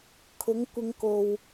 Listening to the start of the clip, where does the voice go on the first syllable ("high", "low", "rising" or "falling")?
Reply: rising